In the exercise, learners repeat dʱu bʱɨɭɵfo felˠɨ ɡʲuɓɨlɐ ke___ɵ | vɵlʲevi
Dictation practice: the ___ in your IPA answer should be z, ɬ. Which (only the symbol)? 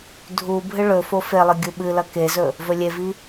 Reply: z